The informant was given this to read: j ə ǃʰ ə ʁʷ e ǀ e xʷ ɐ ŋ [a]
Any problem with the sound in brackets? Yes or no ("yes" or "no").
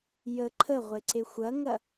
yes